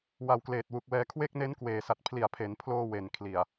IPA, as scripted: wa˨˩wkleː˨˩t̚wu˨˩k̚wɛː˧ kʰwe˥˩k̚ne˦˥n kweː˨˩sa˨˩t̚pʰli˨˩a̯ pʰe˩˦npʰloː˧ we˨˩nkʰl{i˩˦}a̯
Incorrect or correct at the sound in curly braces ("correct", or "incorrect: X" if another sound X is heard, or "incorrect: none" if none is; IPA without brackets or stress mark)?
incorrect: i˨˩